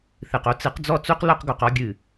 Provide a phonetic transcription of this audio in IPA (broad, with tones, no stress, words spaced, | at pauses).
θɨ˨qo˦ t͡sɨ˨˦qd͡zɔ˦˨t͡su˦q lo˦qɡo˨qɔ˦ ɡʲɨ˨